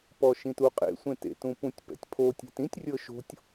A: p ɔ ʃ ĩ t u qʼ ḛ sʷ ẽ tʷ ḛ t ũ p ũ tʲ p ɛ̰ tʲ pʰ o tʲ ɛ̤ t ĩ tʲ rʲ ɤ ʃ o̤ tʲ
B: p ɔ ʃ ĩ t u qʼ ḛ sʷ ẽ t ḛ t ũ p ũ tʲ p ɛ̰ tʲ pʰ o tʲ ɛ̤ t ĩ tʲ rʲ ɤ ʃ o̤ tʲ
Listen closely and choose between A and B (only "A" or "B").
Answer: B